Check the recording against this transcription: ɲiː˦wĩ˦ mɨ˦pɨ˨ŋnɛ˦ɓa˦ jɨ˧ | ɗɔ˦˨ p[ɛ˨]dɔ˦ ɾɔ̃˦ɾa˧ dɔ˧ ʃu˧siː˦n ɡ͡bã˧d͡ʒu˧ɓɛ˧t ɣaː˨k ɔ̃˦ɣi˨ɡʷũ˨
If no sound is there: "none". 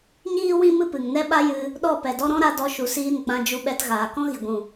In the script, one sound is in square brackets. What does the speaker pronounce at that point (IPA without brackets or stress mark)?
ɛ˨